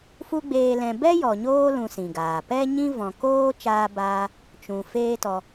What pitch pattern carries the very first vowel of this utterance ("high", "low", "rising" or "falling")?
high